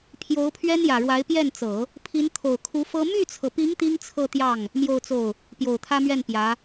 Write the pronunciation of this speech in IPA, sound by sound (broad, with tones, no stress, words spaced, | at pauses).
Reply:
pʰjo˧˥ʊ̯pʰɥɛ˥njä˨˩ɻwa˧˥ɪ̯ pjɛ˥˩nt͡sɤ˨˩˦ | pʰi˧˥nt̪ʰo˨˩ʊ̯kʰu˧˥ fɤ˥ my˥˩t͡sʰɤ˩pi˧˥ŋ t̪i˥ŋt͡sʰɤ˥˧t̪jɑ˥˩ŋ | mjo˥˧ʊ̯t͡so˥˩ʊ̯ | pjo˨˩ʊ̯t̪ʰä˥mɥɛ˥˩n pjä˧˥